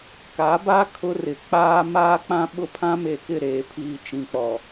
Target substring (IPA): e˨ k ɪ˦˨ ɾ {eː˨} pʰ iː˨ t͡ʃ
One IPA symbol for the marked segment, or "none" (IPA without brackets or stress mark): eː˨